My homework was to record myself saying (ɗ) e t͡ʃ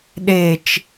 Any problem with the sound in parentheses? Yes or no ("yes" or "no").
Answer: no